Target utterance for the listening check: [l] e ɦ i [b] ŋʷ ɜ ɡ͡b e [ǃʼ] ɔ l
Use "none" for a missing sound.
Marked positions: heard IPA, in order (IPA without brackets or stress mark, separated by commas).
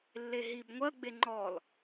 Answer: lː, b, ŋ͡ǃ